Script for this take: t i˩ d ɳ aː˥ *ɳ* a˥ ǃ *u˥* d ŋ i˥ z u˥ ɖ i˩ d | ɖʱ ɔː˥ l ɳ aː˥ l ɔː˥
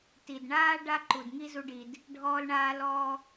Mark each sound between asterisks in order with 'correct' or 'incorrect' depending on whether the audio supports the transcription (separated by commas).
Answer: incorrect, incorrect